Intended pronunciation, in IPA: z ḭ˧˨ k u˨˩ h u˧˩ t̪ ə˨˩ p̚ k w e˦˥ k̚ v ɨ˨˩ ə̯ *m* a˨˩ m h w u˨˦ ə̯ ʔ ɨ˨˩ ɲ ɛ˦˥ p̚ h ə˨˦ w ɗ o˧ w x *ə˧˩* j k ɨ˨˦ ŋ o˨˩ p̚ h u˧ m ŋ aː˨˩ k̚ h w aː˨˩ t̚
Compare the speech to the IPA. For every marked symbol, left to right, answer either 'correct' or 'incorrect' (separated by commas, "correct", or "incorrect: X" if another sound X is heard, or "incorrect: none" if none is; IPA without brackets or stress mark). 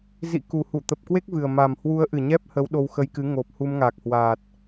correct, incorrect: ə˧